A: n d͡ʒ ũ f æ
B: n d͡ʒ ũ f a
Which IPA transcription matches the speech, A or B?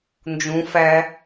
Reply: A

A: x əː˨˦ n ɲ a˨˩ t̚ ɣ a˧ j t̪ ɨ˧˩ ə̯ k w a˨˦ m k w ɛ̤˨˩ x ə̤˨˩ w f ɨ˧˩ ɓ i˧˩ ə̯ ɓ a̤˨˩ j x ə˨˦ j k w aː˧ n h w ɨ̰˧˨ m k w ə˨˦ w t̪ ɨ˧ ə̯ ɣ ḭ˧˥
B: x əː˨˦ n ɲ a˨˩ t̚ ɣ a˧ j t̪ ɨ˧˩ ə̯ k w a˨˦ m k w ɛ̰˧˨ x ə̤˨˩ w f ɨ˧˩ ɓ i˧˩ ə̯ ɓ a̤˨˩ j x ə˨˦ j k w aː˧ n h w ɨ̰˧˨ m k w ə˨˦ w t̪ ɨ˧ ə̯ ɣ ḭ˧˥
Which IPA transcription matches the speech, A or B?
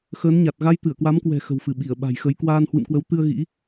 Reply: A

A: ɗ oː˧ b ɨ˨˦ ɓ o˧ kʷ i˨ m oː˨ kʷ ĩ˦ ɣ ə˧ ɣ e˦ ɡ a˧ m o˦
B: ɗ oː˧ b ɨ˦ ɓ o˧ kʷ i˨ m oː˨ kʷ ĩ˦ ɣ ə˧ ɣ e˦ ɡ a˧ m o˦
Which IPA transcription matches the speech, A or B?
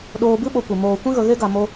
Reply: B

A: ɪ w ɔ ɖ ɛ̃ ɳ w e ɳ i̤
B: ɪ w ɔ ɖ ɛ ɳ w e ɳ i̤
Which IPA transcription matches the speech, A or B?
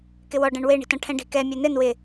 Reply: A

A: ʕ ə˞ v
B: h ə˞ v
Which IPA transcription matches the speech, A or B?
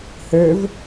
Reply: B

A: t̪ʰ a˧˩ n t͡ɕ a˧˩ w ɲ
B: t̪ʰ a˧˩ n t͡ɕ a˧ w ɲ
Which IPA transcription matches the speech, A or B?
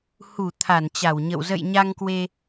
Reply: A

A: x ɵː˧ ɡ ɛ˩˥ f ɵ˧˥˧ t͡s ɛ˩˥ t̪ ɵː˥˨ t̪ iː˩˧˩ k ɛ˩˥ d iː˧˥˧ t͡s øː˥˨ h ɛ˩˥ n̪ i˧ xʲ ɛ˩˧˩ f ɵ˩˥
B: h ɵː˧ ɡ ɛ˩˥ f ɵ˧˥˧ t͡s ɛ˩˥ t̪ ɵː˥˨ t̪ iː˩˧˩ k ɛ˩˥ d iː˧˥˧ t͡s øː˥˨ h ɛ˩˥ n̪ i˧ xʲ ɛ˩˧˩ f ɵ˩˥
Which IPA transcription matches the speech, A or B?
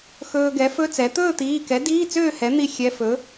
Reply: A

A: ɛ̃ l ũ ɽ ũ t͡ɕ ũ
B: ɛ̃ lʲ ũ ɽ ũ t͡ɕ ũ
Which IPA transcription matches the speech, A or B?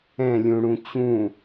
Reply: B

